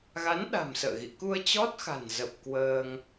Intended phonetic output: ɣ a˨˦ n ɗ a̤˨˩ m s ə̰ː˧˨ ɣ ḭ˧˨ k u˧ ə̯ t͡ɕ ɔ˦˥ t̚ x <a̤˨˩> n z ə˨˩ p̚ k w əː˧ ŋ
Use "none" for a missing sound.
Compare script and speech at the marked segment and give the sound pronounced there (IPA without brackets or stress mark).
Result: a̤˨˩